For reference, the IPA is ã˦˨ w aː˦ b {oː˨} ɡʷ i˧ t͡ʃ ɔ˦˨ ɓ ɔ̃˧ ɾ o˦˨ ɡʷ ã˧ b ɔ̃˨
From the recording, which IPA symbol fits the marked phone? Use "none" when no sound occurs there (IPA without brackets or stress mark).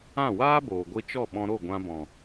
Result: oː˨